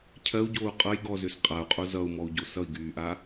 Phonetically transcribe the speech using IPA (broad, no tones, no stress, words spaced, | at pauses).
cʰɜu̯ɟoːu̯ qʼʌj ɡɔzøs qʼau̯qʼo zʌu̯mɔu̯ɟo sʌi̯ɡyːʔa